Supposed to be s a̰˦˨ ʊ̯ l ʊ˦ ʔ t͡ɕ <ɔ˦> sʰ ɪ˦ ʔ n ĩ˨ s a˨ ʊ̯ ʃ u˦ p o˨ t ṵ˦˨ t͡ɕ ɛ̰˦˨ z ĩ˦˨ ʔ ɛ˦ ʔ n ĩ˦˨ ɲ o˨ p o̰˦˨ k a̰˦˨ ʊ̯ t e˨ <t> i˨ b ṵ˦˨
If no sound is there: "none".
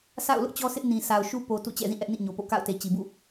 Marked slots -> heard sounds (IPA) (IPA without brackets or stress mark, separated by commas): ɔ˦, t͡ɕ